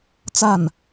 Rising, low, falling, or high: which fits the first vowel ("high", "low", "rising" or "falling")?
falling